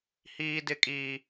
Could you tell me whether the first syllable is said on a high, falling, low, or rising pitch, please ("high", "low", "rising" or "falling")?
high